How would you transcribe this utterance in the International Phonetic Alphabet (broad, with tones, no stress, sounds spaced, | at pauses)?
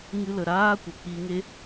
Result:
ŋ ɨ˧ l ə˨ ɾ aː˦ kʷ ə˨ k͡p i˧ ŋ e˦